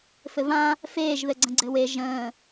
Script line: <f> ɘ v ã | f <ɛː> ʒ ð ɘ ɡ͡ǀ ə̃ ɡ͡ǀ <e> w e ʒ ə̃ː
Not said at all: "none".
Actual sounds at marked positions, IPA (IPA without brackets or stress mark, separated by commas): f, eː, ɘ